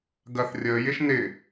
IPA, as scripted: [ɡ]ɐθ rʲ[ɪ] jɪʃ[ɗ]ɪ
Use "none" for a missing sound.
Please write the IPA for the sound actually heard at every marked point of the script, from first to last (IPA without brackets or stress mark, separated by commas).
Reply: ɡ, ə, n